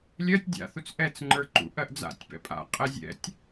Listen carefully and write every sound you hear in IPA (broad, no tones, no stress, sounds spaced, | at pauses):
lʲ ɜ tʲ dʲ a̰ θ u t͡s ʔ ɛ t͡s ŋ͡ǃ ə˞ ǃ ṵ ʔ ɜ ʔ d͡z a̰ tʲ p ɛ̰ pʼ a̰ qʼ ɛ zʲ ɛ̰ tʲ